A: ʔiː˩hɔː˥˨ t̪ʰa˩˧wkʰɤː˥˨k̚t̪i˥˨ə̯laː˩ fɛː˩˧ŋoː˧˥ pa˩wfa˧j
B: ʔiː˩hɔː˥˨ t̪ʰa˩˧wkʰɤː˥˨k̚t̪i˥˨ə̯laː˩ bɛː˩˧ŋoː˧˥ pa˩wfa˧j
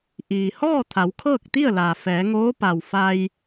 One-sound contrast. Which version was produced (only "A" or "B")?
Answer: A